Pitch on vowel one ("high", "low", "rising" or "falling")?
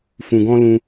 low